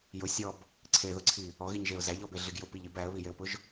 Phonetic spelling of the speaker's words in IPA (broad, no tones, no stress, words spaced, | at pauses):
jʊ sʲɔb | ǀʰeðʊǀʰi | ɔɣiɲʒeʊ̯ zæʎɔbeɮiɡ jʊpiʎib æə̯βijeʊ̯pʊʒ